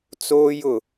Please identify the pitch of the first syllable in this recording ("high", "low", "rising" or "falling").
high